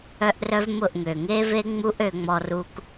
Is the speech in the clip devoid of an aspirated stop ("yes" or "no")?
yes